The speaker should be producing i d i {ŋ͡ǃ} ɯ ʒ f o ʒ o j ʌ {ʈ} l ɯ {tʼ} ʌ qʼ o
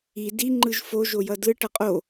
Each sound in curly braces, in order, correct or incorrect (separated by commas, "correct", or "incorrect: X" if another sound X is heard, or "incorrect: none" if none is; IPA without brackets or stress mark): correct, incorrect: d, incorrect: ʈ